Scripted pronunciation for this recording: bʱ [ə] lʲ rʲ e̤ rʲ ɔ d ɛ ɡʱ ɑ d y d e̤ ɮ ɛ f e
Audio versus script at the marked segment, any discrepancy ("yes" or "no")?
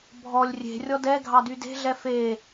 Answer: yes